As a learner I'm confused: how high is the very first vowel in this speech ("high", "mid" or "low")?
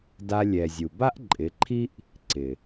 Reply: low